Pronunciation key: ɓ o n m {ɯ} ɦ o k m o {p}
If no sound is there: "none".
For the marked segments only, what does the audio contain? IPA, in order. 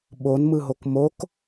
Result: ɯ, k

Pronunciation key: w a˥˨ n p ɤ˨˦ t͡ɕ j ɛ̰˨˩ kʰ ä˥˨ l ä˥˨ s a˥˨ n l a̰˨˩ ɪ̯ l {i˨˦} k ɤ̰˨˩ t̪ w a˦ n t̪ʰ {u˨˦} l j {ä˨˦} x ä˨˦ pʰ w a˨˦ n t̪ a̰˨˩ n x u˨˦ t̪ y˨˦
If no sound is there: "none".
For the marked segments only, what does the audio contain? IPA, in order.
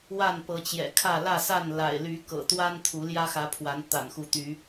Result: y˨˦, u˨˦, ä˦

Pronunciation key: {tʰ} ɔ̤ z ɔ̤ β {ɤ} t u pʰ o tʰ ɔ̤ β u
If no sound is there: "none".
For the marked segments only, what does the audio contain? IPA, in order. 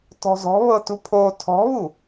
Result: t, ɤ

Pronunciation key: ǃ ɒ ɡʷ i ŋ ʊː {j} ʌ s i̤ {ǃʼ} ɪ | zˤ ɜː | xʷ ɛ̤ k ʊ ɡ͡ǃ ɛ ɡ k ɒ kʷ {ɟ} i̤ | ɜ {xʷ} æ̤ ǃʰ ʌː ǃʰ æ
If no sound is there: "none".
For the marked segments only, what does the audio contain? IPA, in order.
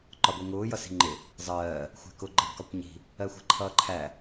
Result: j, ŋ͡ǃ, ɲ, xʷ

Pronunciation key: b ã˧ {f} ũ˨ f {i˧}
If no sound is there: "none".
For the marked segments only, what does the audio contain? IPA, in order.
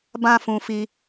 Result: f, i˧

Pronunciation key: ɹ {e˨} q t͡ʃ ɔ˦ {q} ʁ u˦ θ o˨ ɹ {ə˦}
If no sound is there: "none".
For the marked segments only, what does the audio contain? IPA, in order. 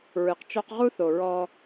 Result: ɨ˨, q, ɔ˦

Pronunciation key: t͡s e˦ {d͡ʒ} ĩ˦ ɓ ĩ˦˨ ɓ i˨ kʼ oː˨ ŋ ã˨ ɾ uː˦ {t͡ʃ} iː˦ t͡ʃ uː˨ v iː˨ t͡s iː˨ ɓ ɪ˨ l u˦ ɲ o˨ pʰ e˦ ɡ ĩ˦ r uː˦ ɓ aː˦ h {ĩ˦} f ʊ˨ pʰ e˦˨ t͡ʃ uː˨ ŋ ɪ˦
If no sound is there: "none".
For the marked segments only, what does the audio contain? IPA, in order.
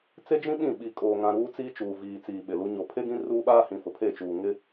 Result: d͡ʒ, t͡s, ĩ˨

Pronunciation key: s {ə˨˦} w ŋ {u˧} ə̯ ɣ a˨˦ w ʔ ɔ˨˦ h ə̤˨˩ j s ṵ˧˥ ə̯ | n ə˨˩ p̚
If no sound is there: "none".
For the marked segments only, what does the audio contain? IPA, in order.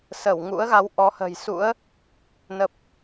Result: ə˧˩, ṵ˧˥

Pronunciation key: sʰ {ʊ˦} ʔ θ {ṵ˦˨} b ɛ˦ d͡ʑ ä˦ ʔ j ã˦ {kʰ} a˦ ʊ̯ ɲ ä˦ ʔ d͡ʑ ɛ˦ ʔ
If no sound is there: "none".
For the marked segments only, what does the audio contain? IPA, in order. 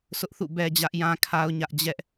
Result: ʊ˦, ṵ˦˨, kʰ

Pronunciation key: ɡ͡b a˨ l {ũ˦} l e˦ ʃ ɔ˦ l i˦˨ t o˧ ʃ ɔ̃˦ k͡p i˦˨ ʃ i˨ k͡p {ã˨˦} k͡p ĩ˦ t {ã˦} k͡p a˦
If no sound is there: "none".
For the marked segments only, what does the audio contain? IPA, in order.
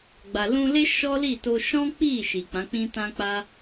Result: ũ˧, ã˨˦, ã˦

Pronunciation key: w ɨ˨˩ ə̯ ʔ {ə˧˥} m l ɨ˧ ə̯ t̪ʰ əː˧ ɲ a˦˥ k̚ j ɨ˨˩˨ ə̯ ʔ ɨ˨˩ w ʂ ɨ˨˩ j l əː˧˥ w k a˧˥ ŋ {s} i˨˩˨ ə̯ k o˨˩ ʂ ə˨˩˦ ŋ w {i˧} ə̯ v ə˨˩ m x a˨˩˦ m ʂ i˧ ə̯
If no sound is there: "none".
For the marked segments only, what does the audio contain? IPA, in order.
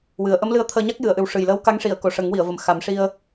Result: ə˧˥, ʂ, i˨˩˨

